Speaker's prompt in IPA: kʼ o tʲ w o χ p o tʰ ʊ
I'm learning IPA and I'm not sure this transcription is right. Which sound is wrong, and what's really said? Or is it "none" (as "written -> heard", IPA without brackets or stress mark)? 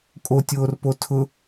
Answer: χ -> r